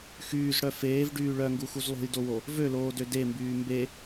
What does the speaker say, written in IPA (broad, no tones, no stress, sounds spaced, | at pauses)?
x yː z ɽ œ f eː v ɖ yː ɭ œ ŋ ɡ u x u z lˠ o̤ j d o w o | v ø l oː d ø d e m b yː m b e